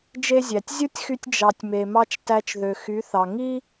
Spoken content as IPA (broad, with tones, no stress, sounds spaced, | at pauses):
d͡ʒ e˦ zʲ æ˨ tʲ zʲ u˦ tʲ x y˧ tʲ d͡ʒ ɑ˨ tʲ m e˨ m ɑ˧ t͡ʃ t æ˧ t͡ʃ ð ø˨ x y˨˦ θ ɑ˨ ŋ i˦